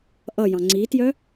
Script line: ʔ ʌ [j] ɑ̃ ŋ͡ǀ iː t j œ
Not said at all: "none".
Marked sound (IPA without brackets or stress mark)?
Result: j